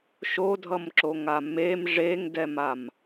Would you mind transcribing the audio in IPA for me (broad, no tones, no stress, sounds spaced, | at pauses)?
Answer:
ʃ o dʱ ʌ m ǁ o ŋ a m e m ʐ e ŋ d ɛ m a m